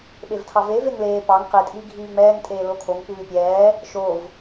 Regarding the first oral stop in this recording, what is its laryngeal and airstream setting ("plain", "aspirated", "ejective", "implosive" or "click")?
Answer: implosive